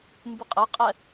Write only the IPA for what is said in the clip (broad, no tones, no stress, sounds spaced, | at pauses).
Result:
m b ɨ qʼ ɘ qʼ ɛ